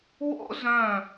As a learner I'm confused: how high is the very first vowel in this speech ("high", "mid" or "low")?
mid